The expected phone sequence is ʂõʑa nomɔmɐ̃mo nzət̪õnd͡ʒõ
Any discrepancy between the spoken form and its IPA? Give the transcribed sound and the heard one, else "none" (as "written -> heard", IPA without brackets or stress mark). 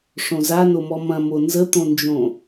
ʑ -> z